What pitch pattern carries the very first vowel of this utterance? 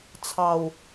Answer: low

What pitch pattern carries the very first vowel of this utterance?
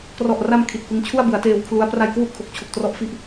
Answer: low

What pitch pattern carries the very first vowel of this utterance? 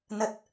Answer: low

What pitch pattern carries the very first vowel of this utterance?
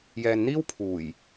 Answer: low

